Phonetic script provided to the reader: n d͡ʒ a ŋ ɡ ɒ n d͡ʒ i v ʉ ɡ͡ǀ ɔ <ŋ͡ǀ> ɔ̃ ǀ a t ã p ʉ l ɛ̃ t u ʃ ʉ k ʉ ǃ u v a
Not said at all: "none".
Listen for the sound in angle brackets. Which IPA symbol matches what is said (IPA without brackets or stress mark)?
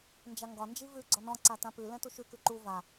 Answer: n